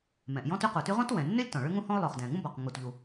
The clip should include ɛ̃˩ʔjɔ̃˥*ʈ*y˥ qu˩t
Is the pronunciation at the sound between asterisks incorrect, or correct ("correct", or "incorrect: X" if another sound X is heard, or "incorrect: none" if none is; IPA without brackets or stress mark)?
incorrect: t